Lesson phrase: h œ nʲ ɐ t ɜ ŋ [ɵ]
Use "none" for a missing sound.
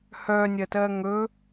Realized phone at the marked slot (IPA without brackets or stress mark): ɵ